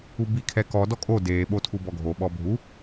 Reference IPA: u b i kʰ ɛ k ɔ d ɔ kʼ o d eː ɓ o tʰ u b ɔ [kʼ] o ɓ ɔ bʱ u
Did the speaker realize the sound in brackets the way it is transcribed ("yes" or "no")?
no